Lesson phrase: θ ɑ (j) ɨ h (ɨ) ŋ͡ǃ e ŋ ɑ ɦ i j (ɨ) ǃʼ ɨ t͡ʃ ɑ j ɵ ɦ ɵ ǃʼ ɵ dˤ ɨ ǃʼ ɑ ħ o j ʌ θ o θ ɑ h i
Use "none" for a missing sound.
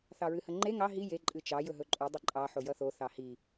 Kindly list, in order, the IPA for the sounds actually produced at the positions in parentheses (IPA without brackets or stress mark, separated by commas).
ɹ, ə, e